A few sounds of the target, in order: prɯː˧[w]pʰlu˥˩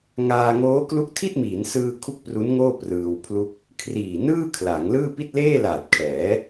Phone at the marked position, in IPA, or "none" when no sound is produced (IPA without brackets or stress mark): w